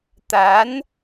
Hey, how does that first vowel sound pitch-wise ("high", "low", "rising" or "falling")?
rising